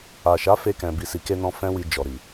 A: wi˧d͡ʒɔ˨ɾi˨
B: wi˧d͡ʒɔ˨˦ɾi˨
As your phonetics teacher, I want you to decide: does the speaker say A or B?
A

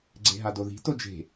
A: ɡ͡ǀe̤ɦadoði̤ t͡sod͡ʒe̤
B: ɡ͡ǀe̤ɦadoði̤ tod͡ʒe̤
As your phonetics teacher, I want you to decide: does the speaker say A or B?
B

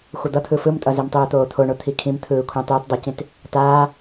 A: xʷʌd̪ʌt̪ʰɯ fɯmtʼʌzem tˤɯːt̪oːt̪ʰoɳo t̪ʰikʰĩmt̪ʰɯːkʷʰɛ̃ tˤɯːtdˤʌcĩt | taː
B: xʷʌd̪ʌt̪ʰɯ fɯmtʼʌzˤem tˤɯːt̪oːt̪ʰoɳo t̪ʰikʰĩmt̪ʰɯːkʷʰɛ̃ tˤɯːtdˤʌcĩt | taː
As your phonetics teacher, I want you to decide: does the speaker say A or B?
A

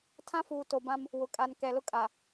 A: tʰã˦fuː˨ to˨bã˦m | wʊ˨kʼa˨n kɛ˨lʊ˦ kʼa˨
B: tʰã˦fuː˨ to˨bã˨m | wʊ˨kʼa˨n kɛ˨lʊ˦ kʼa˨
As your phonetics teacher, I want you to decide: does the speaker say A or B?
A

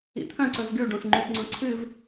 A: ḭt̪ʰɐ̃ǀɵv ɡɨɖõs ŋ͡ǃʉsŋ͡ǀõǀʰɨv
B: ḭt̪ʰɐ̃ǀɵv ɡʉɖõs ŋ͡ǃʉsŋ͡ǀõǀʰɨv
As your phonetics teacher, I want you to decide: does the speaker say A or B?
B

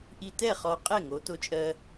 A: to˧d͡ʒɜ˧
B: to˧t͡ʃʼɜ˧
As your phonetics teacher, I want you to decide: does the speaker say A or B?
B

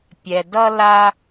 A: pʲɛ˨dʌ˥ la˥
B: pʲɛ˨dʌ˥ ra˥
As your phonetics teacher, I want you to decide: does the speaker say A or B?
A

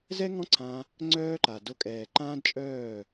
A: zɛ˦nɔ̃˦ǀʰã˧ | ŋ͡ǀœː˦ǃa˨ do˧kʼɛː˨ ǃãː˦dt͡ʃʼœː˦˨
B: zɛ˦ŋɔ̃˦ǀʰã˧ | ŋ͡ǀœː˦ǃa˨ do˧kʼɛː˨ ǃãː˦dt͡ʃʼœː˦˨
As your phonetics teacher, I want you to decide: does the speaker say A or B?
B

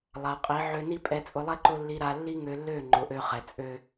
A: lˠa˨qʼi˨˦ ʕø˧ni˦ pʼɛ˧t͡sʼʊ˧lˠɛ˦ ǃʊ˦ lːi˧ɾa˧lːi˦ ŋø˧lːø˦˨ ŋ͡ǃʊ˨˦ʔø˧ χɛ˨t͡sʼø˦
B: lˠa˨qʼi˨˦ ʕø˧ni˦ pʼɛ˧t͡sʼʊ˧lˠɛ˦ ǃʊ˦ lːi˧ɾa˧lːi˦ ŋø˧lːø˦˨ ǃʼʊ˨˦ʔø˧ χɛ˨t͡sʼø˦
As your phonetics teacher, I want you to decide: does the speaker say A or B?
A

